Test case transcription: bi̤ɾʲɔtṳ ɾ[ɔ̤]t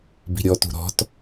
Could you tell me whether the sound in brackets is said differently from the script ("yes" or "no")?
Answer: no